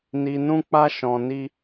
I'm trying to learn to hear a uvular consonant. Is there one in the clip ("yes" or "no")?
no